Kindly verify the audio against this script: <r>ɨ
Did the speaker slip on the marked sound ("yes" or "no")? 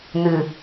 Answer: yes